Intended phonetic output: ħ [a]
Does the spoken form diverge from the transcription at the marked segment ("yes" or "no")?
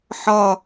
yes